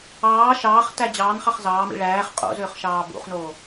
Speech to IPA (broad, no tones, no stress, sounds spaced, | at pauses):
ɑː ʃ ɑː χ t æ d͡ʑ ɑː n χ ɑ χ z ɑː m ḭ ɭ æː χ qʼ o̰ z øː χ ʃ ɑː b ṵ χ n oː